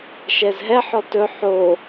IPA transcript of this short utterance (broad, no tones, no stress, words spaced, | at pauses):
ʃɛzɦɛħɔ tɵ ħo